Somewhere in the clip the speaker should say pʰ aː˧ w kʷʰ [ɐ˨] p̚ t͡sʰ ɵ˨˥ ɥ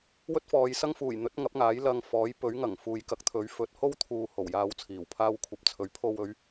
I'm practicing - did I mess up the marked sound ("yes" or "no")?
no